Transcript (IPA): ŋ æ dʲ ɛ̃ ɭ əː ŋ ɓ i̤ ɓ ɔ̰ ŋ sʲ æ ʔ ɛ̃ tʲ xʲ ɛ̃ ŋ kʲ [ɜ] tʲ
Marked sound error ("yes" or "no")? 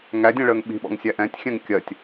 no